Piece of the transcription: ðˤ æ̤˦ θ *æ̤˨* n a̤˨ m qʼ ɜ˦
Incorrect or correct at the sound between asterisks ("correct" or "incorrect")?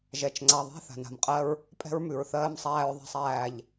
incorrect